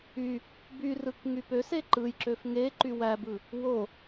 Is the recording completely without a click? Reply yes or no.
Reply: no